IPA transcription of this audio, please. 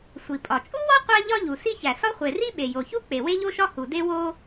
sʷ i˩ pʼ ɒ˩ t͡ʃʼ u˥ w ɒ˥ qʷ æ˥ ʎ ɒ˥ ʎ u˩ s i˥ ç æ˩ s ɒ˥ χʷ e˩ r i˥ ɓ e˩ j o˩ ç u˥ k͡p e˩ w e˥ ʎ o˥ ʃ ɒ˥ h u˩ d e˥ w o˥

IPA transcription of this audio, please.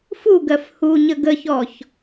f u ɡ ɜ f h u ɲ ə ɡ ə ç ɔ ç

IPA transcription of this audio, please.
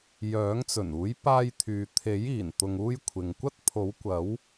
j œː˨˥ ŋ t͡s ɵ˨˩ n uː˨˥ j p aː˧ j t̪ʰ yː˨ t̪ʰ e˨˥ j iː˨˩ n t̪ ʊ˨ ŋ uː˧ j kʷʰ ɪ˨ ŋ kʷ ɐ˥ t̚ pʰ o˨˥ w kʷ ɐ˨˥ w

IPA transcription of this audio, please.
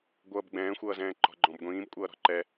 ɡʷ ʌː b ɡ͡b ɛ̃ː xʷ ʌː z ɛ̃ː ǃ ɔ̤ ɡ͡ǃ ɔ̃ b ɡʷ ĩː b kʷʼ ʌː ɾ ɔ̤ ǃ ɛ

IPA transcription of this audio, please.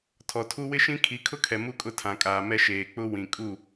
tʰ ɔ˨ tʰ u˦ w ɪ˦ ʃ ĩ˦ kʰ i˨˦ kʰ ʊ˦ kʰ ɛ˨ m u˦ kʼ ʊ˦˨ tʰ ã˨ kʼ aː˨ m ɛ˦ ʃ eː˨ k͡p ʊ˦ w ĩ˨ kʼ u˦˨

